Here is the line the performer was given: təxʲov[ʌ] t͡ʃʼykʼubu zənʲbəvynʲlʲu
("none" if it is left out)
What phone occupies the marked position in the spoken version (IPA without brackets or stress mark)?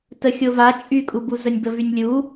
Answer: a